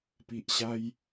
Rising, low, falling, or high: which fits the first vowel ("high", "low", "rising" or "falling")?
low